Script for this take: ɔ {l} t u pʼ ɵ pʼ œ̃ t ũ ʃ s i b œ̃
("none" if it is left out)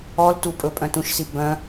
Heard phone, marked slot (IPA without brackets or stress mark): l